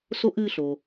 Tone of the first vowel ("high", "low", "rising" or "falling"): high